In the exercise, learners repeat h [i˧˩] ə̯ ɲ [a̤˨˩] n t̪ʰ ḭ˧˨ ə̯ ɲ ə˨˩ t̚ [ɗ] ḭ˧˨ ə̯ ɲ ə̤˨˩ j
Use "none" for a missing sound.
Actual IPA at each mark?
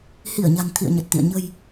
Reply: i˧˩, a̤˨˩, t̪

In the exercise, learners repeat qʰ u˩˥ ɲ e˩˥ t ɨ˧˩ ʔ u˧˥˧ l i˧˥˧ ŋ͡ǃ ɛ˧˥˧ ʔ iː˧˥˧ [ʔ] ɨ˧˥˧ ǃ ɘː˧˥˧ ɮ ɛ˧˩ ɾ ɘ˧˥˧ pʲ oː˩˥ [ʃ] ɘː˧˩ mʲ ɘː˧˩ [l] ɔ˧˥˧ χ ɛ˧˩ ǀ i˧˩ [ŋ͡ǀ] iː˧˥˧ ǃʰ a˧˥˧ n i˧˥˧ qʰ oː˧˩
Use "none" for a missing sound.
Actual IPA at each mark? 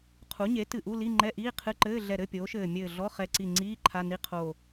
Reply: qʰ, ʃ, ɮ, ŋ͡ǀ

